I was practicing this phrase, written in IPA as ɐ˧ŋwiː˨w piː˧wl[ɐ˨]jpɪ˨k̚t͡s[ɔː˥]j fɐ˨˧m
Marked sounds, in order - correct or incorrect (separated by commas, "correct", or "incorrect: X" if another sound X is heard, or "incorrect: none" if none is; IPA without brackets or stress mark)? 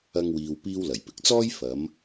incorrect: ɐ˨˩, correct